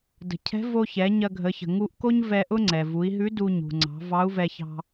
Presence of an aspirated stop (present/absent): present